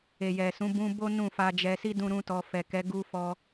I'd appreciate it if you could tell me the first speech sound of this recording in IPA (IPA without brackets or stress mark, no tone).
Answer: e